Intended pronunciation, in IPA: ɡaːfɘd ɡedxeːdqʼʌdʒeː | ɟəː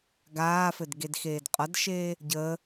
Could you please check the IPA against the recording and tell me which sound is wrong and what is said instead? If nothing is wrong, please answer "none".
ʒ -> ʃ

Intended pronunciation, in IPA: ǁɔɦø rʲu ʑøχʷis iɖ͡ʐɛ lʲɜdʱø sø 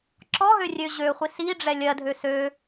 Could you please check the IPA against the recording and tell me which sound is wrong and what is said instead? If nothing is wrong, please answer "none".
u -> ø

